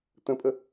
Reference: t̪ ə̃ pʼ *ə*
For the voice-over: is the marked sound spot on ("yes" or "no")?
yes